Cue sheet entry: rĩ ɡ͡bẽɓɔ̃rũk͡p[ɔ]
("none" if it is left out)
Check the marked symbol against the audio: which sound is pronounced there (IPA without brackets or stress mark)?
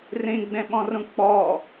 ɔ